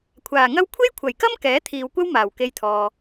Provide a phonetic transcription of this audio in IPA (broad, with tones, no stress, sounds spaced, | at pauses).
kʷʰ aː˨˩ ŋ ɐ˥ w kʷʰ e˥ j kʷʰ ɐ˨˩ j k ɐ˥ m k ɛː˨˥ t̪ʰ iː˨ w kʷ ɐ˥ w m aː˨˩ w k e˧ j t̪ʰ ɔː˨